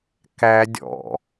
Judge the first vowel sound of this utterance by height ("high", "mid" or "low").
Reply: low